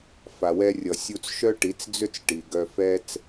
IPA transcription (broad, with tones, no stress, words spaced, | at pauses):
fa˨wɛ˧rʲʌ˨ sʲu˧t͡sʃœ˦ʈi˨˦t͡sd͡zʏ˦t͡s ʈi˨ɡœ˧fɛ˦t͡s